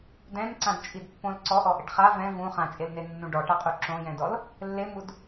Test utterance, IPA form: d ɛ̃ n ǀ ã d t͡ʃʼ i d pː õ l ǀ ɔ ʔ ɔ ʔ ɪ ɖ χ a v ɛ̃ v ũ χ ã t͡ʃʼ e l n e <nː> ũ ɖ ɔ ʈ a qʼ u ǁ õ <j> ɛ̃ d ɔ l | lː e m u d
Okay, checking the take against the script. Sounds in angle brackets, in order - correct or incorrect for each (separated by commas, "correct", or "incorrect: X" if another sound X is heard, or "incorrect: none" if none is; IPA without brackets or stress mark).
correct, correct